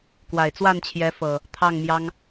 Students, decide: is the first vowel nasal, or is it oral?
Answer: oral